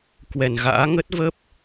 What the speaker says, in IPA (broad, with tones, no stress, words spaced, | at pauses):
kwɛ˨˩nɣa̰ː˧˥ ŋə˦˥t̚və˦˥p̚